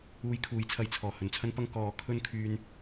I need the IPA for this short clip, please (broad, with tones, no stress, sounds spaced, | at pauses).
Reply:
uː˧ j kʰ uː˨˥ j t͡sʰ ɐ˨ j t͡sʰ ɔː˨˩ h ɵ˨˩ n t͡sʰ ɐ˥ n p ɐ˥ ŋ k ɔː˨˥ kʰ ɵ˥ n kʰ yː˧ n